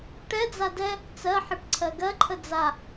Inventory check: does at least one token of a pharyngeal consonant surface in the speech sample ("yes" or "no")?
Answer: yes